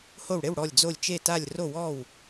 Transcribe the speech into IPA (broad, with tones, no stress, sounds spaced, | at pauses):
h o˧˩ w ɽ e˥˩ w ɽ ɔ˧˩ lʲ d͡z o˧˩ lʲ t͡ʃ e˧˩ t a˧˩ lʲ r o˧˩ w ɔ˧˩ w